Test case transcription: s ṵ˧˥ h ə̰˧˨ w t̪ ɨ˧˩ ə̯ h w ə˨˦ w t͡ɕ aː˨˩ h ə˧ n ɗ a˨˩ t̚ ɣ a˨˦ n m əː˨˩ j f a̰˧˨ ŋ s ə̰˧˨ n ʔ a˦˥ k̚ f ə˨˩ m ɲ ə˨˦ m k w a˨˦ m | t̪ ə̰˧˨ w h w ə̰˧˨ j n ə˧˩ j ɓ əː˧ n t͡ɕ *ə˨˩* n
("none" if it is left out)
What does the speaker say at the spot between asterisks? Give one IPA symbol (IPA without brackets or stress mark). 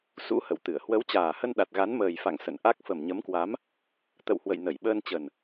ə˨˩